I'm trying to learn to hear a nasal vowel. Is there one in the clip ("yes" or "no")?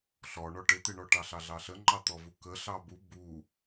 no